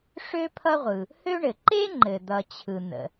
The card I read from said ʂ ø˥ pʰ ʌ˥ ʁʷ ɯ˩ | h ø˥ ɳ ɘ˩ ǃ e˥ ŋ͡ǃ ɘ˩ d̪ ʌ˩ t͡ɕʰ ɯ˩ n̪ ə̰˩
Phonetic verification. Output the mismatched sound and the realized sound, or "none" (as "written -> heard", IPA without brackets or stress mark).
none